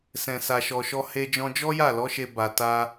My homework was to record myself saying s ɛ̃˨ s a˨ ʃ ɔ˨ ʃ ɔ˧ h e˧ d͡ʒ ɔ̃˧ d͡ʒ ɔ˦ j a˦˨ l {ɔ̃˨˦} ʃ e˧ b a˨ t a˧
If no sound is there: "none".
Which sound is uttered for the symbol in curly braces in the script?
ɔ˨˦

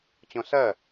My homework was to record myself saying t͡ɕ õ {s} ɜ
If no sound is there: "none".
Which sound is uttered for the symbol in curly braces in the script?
s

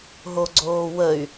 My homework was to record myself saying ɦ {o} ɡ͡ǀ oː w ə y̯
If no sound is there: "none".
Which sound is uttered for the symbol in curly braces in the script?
o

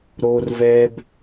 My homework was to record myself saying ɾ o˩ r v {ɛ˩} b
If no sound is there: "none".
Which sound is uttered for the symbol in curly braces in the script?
ɛ˩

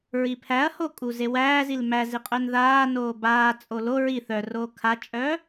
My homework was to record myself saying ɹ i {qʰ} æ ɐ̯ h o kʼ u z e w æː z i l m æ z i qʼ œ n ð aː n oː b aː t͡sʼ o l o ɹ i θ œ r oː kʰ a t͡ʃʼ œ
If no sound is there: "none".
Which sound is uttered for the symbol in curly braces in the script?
pʰ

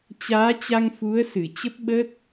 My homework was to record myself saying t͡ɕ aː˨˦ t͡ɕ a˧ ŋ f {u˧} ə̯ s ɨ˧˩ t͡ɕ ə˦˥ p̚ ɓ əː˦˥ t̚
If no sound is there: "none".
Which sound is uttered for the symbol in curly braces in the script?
u˨˦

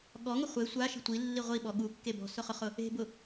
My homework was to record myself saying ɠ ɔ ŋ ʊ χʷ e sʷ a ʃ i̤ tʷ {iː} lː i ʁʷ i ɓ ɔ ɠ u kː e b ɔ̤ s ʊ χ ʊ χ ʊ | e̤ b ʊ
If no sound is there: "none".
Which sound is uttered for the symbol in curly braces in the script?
i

